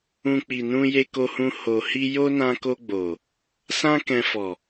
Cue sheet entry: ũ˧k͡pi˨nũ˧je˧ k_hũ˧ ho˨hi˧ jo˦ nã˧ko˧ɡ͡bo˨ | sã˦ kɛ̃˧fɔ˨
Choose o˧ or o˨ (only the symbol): o˧